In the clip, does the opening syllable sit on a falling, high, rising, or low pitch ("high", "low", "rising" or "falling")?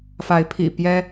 rising